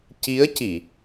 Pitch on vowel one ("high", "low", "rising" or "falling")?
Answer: rising